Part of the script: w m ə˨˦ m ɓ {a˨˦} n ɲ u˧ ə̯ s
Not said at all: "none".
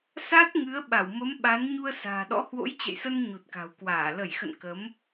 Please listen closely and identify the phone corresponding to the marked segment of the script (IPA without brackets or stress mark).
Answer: a˨˦